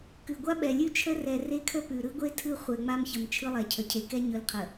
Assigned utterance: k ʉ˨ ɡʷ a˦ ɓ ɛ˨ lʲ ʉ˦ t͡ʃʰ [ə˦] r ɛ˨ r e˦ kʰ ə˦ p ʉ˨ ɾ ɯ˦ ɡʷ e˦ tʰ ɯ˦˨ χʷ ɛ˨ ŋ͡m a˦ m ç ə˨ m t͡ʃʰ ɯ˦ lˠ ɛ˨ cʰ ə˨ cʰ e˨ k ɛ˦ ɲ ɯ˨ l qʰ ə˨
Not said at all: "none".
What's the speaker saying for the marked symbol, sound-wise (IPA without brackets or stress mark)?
ə˦